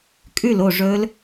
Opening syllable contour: falling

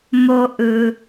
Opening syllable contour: high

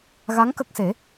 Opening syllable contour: rising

